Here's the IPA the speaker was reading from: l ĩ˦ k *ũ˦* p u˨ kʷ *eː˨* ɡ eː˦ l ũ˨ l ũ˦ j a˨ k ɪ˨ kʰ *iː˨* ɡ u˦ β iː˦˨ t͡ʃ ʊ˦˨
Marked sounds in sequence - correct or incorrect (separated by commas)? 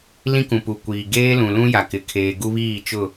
incorrect, incorrect, incorrect